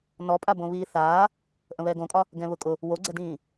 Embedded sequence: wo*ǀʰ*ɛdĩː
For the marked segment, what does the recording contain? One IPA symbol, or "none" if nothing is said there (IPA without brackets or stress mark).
ɡ͡ǀ